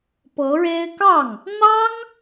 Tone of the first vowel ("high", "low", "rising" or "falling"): rising